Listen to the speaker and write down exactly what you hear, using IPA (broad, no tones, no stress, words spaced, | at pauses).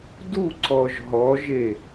duǀɔʒ ɦɔʒe